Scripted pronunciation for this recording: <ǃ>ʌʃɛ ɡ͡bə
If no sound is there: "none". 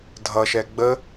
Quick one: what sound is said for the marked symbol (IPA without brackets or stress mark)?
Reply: dʱ